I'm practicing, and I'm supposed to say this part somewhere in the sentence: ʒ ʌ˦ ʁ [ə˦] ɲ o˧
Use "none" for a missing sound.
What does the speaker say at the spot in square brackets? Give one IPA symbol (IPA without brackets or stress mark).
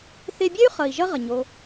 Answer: ə˨